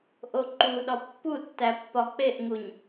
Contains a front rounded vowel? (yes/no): no